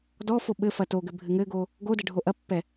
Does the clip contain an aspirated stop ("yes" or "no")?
no